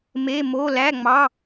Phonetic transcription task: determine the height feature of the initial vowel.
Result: mid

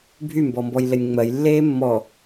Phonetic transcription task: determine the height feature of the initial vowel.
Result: high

